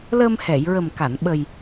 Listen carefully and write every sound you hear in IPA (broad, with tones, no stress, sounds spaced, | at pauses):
l əː˧ m h ɛ˨˩˨ j ɹ ə˨˩ m k a˨˩˨ n ɓ ə˨˩ j